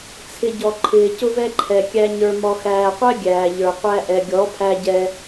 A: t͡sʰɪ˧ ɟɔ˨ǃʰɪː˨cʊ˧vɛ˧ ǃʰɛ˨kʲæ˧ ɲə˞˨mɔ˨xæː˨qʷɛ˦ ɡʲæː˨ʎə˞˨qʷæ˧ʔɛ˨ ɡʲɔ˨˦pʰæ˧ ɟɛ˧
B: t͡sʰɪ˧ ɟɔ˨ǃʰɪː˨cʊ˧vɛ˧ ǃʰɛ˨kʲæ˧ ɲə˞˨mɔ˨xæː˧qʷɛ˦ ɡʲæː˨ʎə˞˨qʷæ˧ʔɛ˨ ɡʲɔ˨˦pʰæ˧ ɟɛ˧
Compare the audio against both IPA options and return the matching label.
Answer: A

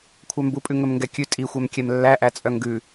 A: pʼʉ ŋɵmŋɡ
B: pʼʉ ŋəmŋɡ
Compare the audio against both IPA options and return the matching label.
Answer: A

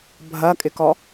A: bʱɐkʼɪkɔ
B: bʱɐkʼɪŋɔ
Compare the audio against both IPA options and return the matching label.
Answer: A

